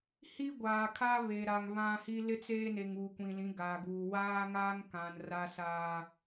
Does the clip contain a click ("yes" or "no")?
no